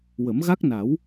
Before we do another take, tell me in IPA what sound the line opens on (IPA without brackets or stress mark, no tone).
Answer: w